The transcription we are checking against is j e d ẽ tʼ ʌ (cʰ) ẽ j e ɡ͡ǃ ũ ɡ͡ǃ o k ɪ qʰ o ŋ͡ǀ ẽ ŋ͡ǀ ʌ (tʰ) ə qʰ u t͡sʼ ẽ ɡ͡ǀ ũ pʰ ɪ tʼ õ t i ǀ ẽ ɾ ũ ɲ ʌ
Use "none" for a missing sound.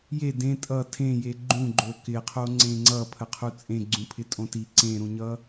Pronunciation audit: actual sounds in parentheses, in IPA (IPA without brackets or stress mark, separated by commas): tʰ, pʰ